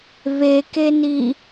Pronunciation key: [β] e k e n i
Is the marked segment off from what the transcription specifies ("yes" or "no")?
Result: no